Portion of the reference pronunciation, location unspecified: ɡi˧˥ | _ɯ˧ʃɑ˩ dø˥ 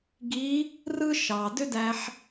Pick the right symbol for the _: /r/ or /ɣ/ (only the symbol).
r